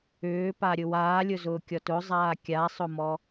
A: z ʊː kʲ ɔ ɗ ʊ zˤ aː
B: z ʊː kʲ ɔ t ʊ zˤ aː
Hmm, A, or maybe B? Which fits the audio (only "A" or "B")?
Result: B